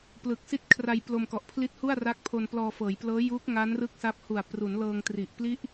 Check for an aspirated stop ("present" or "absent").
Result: present